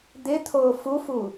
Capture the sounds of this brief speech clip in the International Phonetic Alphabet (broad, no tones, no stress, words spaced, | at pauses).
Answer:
d̪ɪt̪ʰoː fufu